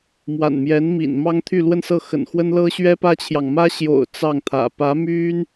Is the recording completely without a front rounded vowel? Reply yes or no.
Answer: no